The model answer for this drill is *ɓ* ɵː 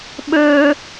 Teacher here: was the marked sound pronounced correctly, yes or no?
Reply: yes